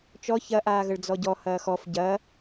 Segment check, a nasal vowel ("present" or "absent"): absent